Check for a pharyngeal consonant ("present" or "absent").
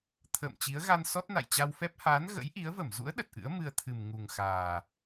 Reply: absent